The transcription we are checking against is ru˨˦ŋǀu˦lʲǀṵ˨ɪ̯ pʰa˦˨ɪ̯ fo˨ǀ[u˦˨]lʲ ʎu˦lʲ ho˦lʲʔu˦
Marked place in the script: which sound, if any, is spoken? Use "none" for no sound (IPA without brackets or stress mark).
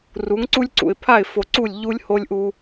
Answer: u˦˨